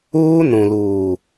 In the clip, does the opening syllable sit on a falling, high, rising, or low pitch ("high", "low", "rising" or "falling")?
high